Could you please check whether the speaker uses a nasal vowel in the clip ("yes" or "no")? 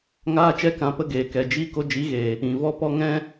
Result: yes